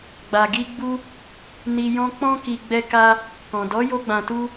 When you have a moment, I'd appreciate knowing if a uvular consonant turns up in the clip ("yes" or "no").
no